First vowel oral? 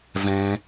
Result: no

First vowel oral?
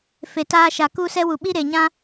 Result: yes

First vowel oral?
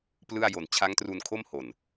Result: yes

